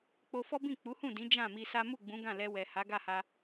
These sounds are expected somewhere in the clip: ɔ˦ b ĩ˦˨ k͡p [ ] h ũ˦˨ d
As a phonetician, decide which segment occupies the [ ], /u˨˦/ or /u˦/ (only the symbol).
u˨˦